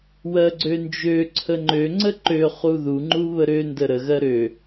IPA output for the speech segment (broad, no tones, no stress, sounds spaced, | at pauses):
w ɜ ɡ͡ǀ ø n d͡ʒ ø ǀʰ ə ŋ͡ǃ ø ŋ͡ǀ ə ǃ ø χ u ð u ŋ͡ǃ u β ə ɾ ø n d ə ɾ ə ɣ ɜ ɾ ø